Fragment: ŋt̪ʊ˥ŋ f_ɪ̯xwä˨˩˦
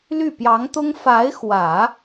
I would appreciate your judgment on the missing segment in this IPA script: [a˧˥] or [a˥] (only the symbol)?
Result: a˧˥